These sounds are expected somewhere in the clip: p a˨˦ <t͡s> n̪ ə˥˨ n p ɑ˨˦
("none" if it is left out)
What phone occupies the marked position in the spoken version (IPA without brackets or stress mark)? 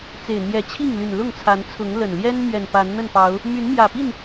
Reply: n